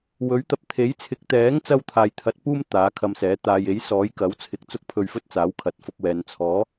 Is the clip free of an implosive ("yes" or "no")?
yes